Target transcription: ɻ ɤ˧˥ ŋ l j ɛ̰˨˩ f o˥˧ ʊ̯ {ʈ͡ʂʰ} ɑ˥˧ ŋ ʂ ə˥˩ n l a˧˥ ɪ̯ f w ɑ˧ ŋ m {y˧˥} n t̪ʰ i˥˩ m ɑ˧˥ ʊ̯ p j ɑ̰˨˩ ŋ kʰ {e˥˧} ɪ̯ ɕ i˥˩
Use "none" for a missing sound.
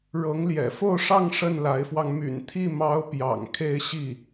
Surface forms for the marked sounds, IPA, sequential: ʂ, y̰˨˩, e˥˧

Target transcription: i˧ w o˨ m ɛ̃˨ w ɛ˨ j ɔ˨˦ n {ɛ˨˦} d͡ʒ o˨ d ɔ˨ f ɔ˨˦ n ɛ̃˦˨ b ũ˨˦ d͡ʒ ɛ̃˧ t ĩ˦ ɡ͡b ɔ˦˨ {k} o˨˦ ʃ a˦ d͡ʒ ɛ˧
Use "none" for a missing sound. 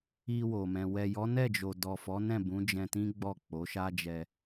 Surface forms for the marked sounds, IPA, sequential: ɛ˦˨, k͡p

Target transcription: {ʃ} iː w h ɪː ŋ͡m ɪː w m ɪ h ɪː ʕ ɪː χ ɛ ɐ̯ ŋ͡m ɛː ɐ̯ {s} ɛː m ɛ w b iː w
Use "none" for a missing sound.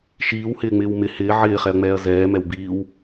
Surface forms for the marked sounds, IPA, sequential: ʃ, z

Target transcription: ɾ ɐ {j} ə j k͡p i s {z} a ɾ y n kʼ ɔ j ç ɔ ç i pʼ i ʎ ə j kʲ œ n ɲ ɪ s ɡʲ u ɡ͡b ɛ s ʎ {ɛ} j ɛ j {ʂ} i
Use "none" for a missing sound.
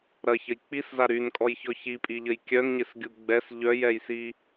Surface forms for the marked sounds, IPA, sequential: ç, z, œ, s

